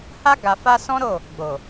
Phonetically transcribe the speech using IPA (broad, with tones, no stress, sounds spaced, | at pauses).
h a˦ ɡ a˧ f a˦ s ɔ̃˦ ɾ o˦˨ | ɡ͡b o˨